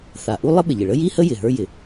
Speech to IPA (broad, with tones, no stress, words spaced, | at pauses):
θa˩ ʔu˥lˠə˥ɓɪ˩ʎɪ˩ ɭə˥ji˥hə˥ jɪ˩ɦə˞˥ jɪ˩